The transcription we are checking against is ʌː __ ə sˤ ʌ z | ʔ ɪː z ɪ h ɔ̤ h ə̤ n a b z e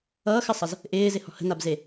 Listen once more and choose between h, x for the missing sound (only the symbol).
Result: x